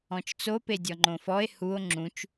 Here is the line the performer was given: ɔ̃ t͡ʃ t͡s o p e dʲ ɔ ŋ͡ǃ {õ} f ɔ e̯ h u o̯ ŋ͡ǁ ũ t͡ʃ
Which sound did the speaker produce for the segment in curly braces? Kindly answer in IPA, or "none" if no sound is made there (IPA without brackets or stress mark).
õ